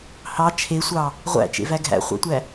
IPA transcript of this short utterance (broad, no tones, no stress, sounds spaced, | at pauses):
h ɑ t͡ʃʰ e sʷ ɑ | ʁʷ æ̰ t͡ʃ ḛ v æ ɡʱ æ̰ χʷ ɑ̰ tʷ æ